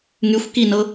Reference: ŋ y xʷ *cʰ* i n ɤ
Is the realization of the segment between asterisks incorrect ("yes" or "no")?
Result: yes